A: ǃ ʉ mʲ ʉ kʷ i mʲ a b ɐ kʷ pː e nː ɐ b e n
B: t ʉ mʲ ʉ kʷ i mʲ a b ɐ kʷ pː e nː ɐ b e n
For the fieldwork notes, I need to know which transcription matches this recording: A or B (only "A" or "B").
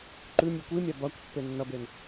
A